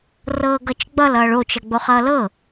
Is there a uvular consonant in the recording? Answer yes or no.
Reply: yes